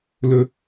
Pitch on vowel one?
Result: low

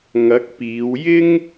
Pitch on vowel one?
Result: rising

